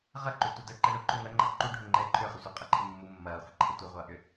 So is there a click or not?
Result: yes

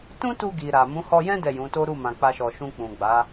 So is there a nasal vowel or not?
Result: yes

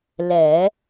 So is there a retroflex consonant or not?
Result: no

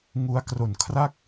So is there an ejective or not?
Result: no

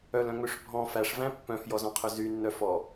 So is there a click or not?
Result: no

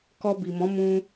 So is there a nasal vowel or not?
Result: yes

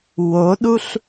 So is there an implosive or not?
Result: yes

